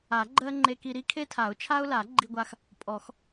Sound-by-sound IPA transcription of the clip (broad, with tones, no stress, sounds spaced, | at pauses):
a˨˩˦ ɡ͡ǃ ɜ˦ ŋ͡ǃ e˦ k i˦ ɾ i˦ kʰ e˦ tʰ a˨˩˦ ʊ̯ t͡ʃʰ a˦ ʊ̯ l a˨˩˦ ɡ͡ǃ i˦ ɡʷ a˦ x | pʼ ɔ˨˩˦ x